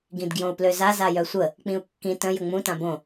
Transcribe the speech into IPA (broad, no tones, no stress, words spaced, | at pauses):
ɡĩdɡjõu̯pløza zajœsʷə | k͡pĩu̯kːĩ tə̃ jəŋ͡mũ tãbõ